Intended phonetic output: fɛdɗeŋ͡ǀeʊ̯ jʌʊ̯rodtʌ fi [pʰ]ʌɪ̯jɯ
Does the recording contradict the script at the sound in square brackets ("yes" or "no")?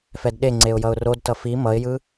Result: yes